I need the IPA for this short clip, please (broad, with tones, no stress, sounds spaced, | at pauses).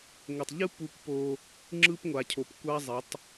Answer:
ŋʷ ʌ˨ tˤ ʎ ɯ˦ p u˦˨ kʷ p o˦ | ŋ͡ǁ ɯ˦ p ŋʷ a˨ cʰ o˨ p kʷ a˦ zˤ e˨˦ tˤ